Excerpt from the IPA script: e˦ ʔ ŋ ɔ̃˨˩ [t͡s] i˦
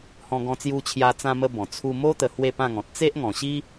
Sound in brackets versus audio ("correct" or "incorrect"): incorrect